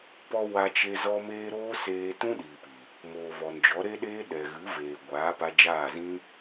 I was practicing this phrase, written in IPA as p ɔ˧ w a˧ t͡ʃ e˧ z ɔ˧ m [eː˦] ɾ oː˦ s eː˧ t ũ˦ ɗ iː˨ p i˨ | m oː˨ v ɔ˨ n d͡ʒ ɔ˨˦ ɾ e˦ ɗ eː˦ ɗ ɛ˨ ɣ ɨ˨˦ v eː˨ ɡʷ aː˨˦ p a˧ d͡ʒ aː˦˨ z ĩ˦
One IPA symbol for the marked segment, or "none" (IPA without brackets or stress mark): eː˧